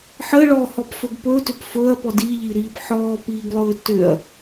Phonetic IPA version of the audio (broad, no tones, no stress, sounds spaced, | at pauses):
ħ ə ɭ ɔ h ɔ p f ɵ ɡ p ɵ t ʏ p f ɵ ɐ̯ p ɔ d i ʎ i ɾ iː p ħ ɔː p iː ɡ lˠ ɵː t ʏ ɐ̯